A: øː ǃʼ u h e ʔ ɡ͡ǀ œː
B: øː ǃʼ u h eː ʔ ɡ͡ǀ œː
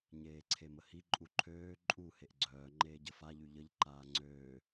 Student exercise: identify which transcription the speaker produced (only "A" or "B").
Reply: A